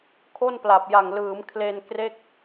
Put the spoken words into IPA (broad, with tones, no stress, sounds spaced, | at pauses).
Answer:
kʰ o˥˩ n p l a˨˩ p̚ j a˨˩ ŋ l ɯː˩˦ m kʰ l e˧ n k r e˥˩ k̚